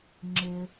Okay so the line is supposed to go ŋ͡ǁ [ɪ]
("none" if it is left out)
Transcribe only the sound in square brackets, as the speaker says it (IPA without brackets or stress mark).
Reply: ɪ